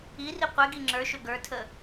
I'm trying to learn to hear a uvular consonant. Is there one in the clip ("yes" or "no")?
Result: yes